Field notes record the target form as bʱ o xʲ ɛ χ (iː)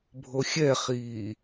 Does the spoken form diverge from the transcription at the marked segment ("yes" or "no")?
no